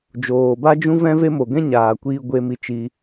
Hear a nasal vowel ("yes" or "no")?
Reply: yes